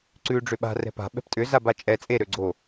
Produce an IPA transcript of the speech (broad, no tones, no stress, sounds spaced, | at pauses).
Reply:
ǀ ʉː ɖ͡ʐ ʏ ɓ a̤ r ɛ̤ p a̤ ɓ ɛ̤ p tʼ ʏ z a b a t͡ʃʼ ɛ t͡sʼ e ɾ ø ɡ͡ǀ o